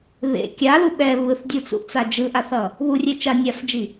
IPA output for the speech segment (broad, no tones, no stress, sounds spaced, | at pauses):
β ḛ kʲ a l u ɓ ɛ β ɯ θ dʲ ɯ t͡s ṵ ʔ t͡s a d͡ʒ ɯ ʔ a θ ʌ | β u rʲ e t͡ʃ a nʲ a f d͡ʒ i